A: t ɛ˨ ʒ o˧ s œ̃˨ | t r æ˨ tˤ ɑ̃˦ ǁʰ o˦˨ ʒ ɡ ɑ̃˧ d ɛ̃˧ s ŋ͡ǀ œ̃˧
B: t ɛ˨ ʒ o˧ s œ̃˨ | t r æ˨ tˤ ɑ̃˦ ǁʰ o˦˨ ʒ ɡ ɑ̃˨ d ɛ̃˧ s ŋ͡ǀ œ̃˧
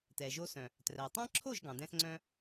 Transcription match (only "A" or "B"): B